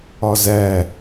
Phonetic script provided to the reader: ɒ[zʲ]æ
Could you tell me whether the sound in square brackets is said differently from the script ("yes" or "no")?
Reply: yes